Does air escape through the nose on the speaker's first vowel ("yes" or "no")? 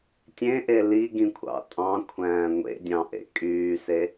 yes